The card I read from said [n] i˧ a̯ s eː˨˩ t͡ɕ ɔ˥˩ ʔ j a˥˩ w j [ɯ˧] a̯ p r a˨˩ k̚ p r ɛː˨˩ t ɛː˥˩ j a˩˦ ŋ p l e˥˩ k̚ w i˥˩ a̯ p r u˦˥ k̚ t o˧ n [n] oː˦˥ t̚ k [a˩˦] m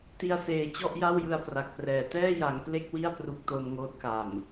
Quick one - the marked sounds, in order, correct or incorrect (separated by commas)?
incorrect, correct, incorrect, incorrect